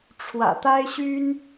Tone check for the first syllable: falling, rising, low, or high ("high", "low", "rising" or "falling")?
low